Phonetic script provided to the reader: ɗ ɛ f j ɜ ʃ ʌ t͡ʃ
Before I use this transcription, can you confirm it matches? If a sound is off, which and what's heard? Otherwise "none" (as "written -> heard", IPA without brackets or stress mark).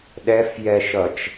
ɜ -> ɛ